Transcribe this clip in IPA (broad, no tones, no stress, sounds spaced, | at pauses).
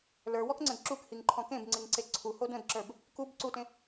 l ə˞ w ɔ k ŋ͡ǀ ə̃ d ǁ u k h i ŋ ǃʰ ɔ̃ k ẽ b ŋ͡ǀ i ŋ ǀ e ǀʰ u h o d ə̃ d ǁ ə˞ b | k u b ǀ u t ẽ